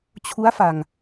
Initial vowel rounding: rounded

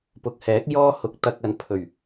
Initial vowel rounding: rounded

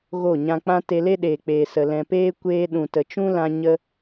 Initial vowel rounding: rounded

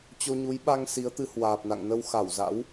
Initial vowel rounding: rounded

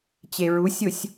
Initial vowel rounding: unrounded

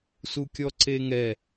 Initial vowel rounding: rounded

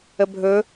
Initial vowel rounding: unrounded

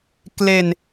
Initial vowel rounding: unrounded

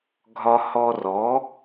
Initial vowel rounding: rounded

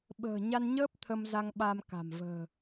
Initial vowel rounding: unrounded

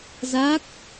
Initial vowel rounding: unrounded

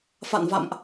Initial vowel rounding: unrounded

